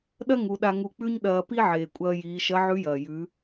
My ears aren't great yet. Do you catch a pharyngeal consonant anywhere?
yes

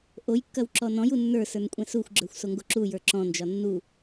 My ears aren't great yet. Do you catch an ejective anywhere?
yes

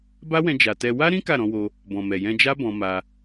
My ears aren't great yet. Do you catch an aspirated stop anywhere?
no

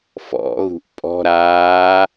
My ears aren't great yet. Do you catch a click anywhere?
no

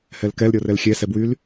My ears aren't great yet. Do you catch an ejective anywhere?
no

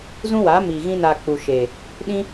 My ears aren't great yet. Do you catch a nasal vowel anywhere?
yes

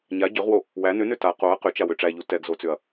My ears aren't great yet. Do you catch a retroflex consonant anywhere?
yes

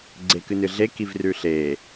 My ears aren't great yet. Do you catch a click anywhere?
yes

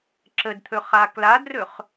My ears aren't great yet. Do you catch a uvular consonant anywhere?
yes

